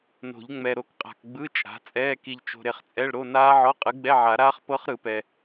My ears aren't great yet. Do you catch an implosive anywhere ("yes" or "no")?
no